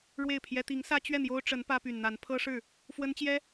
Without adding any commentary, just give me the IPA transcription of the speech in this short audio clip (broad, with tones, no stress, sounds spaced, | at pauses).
ɻ w e˥˩ ɪ̯ pʰ j ɛ˥ t̪ i˧˥ ŋ s ä˥ t͡ɕ ɥ ɛ˥˩ n̪ j o˥ ʊ̯ ʈ͡ʂ ə˧˥ n p ä˥ p y˨˩ n n̪ a˧˥ n pʰ ɤ˥ ʂ ɻ̩˥˩ | f w ə˥ n t͡ɕ j ɛ˥